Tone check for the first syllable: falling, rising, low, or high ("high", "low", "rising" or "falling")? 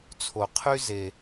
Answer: low